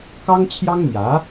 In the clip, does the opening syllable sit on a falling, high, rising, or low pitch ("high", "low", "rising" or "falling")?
high